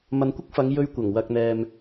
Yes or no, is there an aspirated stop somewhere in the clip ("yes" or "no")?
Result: no